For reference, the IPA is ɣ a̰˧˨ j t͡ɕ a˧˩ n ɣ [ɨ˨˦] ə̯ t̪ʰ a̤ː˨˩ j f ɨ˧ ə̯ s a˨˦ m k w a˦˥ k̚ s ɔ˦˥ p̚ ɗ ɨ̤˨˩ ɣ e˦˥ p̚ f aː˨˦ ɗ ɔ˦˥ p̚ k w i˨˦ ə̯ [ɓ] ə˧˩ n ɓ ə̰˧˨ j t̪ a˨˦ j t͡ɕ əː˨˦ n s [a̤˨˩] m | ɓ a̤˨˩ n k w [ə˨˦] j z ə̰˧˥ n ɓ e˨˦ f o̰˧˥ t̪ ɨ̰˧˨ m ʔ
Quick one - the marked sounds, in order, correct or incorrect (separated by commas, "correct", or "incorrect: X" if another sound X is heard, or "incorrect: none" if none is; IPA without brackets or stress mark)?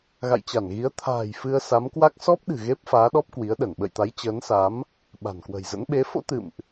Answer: incorrect: i˨˦, incorrect: ɗ, incorrect: a˨˦, incorrect: ə̤˨˩